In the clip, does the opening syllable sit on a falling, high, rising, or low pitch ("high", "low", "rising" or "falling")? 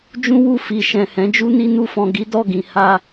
high